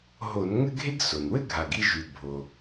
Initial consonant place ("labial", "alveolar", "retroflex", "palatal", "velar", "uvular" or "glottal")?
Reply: glottal